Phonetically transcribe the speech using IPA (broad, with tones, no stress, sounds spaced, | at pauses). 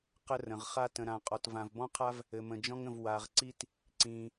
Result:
q ə˧ r ə̃˩ ʁ χ a˧ t ə̃˩ ɾ ã˩ qʼ ɔ˩ t v ã˩ v b ɔ̃˧ qʰ a˧ v | ɘ˩ m ə̃˩ d͡ʒ ɔ̃˧ ŋ ə̃˩ v w a˩ ʁ ǀ i˧ t | ǀ ĩ˩